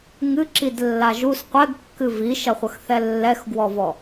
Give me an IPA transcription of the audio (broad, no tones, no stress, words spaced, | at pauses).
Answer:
ŋɨǁidlːa ʒus qʷɛɡkːɨ viʃɐχʷɐxθɛ lːɛxɡwɔvɔ